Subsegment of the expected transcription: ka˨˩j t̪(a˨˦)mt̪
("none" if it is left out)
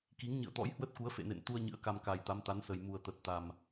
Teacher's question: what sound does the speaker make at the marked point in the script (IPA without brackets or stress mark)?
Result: a˨˦